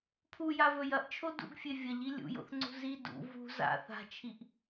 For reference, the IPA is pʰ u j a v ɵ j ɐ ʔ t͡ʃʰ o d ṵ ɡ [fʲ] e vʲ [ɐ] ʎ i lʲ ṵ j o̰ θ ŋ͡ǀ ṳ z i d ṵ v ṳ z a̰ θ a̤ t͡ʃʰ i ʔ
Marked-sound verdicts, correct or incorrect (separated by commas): correct, correct